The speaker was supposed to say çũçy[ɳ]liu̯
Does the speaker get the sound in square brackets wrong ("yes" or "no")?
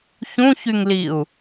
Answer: yes